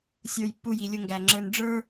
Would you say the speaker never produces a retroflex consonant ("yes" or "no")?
no